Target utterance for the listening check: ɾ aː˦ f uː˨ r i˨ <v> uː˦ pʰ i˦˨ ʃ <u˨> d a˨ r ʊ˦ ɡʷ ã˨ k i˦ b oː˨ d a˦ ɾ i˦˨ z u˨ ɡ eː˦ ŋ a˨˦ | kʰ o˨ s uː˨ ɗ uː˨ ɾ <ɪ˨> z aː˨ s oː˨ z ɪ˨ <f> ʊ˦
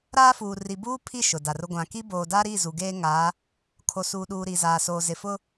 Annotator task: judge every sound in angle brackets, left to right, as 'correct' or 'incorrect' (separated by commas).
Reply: incorrect, incorrect, incorrect, correct